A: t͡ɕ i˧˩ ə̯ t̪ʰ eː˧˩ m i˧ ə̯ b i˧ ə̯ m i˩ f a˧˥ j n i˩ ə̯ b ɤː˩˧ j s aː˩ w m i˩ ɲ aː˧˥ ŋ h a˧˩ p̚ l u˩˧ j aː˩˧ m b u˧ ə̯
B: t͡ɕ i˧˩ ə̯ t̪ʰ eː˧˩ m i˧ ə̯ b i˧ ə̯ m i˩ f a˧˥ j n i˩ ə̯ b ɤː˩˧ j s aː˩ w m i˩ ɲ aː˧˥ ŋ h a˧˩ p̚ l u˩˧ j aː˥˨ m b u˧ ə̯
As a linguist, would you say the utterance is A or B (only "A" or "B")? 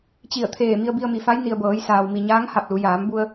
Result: A